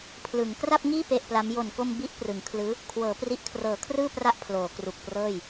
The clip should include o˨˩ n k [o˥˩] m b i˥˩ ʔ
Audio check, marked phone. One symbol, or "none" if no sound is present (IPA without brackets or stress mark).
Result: o˧